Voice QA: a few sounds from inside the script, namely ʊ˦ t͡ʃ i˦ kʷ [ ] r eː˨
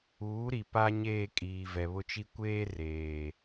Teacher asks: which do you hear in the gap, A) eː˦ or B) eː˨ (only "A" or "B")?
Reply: A